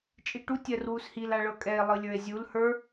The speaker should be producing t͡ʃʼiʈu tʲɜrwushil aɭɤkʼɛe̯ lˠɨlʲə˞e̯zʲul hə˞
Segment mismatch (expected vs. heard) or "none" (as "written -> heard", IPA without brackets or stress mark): none